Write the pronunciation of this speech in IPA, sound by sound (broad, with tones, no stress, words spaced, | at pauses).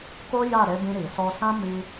ko˦ ja˦˨ɾe˨˦bĩ˧ ɾi˨sɔ˧sã˦ mi˧